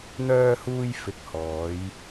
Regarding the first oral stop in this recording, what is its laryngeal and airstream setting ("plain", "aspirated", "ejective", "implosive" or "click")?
plain